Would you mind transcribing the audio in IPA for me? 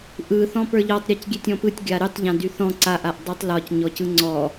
ʔ ɯ θ ɔ̃ p ə˞ ʎ ɔ tˤ ɾʲ a c ɡʲ e tʲ ɔ̃ p ɯ tʲ ɡʲ a ɾ y tˤ ʎ ã d y θ ɔ̃ ǀ a ʔ a ʔ dˤ ə˞ tˤ l ɒ c ɲ ɔ c ɯ ŋ͡ǀ ɔ

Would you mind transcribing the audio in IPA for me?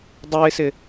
dˤ o ɪ̯ s ɪ

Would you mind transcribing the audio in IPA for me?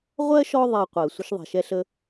ʁʷ ɜ˥ ʃ ɔ˦ ðˤ ɛ˦ qʷ ɜ˨ sʷ ə˦ ʃ ðˤ ɛ̤˩ ʃ ɛ˦ ɬ ə˦

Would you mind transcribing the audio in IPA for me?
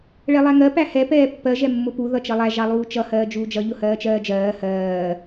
ɭ ɛ lˠ æ ŋ ɜ p æ h ɛ p ɛː pː ɜ ʒ ɛ mː ʊ p u ð ʌ t͡ʃ ʌ lˠ æ ʒ ɑ lˠ uː t͡ʃ ʌ h ɜː d͡ʒ uː d͡ʒ ʌ ʎ ʊ h ɜː t͡ʃ ɜː d͡ʒ ɜː h ɜː

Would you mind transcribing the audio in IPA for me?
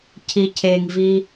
cʰ i cʰ e ŋ v i

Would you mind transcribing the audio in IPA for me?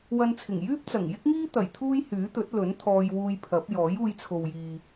w ɐ˧ n t͡sʰ ɪ˨˩ ŋ j yː˥ p̚ t͡s ɐ˨˩ ŋ j ɪ˥ k̚ ŋ iː˥ t̪ ɐ˨˩ j t̪ʰ uː˥ j h yː˨˥ t̪ ɵ˨˥ t̚ l ɵ˨˥ n t̪ʰ ɔː˧ j w uː˧ j pʰ ɐ˨˥ p̚ j ɔː˨˥ j uː˧ j t͡sʰ o˨ w j iː˨

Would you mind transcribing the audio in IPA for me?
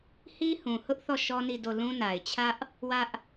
h i˦ h ũ˨ h ʊ˦ ʔ θ ɔ˦˨ ʃ ɔ˦ n i˦˨ d o˦˨ l ũ˦ n a˨ ɪ̯ t͡ɕʰ ä˦ ʔ | w ä˦ ʔ

